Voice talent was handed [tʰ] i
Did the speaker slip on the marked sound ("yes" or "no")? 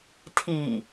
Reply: no